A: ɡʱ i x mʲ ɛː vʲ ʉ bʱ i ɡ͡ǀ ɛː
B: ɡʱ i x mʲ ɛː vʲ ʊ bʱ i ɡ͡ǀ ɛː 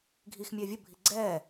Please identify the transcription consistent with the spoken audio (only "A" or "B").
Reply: B